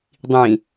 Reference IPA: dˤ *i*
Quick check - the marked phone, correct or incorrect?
incorrect